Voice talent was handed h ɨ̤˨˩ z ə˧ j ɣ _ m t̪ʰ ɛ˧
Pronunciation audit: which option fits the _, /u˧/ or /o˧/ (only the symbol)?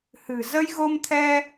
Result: o˧